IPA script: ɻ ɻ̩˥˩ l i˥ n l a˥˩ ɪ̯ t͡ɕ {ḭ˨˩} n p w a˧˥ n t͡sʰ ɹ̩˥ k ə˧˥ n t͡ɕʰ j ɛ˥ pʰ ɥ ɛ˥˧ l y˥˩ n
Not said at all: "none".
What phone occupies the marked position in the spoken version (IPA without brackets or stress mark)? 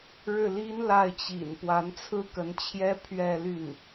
ḭ˨˩